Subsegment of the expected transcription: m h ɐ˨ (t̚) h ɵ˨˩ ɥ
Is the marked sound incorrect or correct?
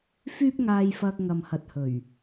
correct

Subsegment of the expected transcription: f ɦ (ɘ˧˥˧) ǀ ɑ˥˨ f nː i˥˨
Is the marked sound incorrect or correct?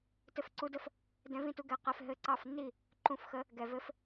correct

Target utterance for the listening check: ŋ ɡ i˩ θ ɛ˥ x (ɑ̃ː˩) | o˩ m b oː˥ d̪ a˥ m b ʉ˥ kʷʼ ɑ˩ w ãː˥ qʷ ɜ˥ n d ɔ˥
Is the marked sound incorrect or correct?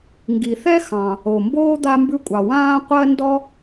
incorrect: ɑ̃˩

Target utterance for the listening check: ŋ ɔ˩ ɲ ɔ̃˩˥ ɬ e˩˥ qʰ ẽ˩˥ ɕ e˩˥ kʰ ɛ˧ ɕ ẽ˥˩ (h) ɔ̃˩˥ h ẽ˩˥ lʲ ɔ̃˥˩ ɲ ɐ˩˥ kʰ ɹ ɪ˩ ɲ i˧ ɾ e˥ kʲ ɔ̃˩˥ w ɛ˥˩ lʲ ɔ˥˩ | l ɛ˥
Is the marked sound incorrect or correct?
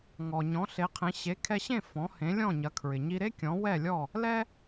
incorrect: f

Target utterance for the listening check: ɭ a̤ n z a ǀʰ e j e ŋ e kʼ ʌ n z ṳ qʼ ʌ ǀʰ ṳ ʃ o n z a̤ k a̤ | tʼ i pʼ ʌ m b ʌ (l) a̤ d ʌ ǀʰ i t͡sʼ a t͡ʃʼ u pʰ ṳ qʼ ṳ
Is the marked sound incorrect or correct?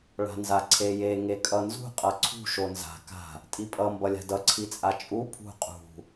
incorrect: lʲ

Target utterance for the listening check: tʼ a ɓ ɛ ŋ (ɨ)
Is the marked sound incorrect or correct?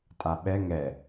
incorrect: ɛ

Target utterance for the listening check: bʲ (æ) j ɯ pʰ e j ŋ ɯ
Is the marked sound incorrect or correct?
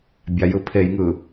incorrect: a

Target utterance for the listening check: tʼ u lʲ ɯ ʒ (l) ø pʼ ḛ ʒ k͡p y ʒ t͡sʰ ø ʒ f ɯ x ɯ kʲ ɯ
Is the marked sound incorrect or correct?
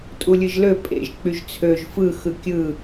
correct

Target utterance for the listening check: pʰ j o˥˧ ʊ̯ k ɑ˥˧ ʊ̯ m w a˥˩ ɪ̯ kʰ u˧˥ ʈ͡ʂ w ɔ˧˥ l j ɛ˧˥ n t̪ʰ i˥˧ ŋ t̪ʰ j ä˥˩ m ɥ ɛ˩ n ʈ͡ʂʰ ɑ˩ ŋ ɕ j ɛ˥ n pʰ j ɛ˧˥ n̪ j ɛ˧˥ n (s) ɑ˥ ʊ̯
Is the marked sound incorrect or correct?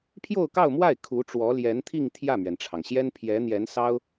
correct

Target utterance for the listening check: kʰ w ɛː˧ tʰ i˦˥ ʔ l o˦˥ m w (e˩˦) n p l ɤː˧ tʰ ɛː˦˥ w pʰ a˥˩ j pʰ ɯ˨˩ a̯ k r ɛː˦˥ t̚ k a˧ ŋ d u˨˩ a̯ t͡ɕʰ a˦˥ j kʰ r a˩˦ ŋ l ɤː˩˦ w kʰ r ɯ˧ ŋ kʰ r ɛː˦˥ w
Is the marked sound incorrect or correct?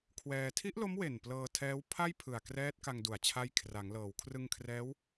incorrect: e˨˩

